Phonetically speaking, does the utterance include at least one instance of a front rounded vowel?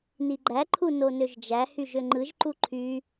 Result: yes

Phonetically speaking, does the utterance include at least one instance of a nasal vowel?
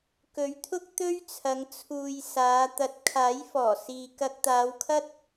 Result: no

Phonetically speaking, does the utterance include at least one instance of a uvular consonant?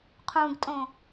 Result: yes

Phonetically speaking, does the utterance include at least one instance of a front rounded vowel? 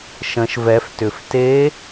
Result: yes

